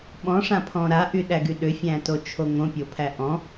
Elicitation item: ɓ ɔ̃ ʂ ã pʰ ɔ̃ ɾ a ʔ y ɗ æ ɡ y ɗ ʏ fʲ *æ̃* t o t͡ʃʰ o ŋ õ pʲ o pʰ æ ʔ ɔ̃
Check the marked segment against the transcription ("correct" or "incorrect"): correct